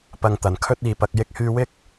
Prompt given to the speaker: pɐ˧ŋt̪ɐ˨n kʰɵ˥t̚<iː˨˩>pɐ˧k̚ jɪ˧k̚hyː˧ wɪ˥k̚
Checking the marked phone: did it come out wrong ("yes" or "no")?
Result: yes